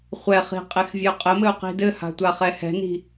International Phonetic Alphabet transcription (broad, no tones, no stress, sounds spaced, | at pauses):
χʷ ɛ χ i̤ qʼ e x vʲ œ qʼ ɘ m ɘ u̯ q i̤ d ɘ h a̤ tʷ a χ ɛ h ɛ̤ n i̤